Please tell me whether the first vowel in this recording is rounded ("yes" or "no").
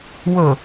yes